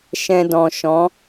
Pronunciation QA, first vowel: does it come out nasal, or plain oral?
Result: nasal